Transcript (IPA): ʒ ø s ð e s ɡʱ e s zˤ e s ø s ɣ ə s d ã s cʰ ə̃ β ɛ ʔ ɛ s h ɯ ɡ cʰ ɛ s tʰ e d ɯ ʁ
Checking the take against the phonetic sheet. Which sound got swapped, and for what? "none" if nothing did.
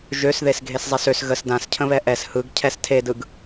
ʁ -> ɡ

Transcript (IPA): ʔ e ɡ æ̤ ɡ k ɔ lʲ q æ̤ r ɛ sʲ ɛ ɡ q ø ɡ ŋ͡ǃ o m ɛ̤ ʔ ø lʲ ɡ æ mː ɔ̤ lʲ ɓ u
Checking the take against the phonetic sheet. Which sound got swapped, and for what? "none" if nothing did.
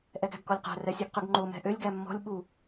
e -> ɛ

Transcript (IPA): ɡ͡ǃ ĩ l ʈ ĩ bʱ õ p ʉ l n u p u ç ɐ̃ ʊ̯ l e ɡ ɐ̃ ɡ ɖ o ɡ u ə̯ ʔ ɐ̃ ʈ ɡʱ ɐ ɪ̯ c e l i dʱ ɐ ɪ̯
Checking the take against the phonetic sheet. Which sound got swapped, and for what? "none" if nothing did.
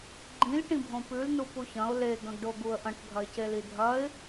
none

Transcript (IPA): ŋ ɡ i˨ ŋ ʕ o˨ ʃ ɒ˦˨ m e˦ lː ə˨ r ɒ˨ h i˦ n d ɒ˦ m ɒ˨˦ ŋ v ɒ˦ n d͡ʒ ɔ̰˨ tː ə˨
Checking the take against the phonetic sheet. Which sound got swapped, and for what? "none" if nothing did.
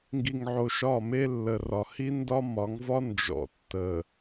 none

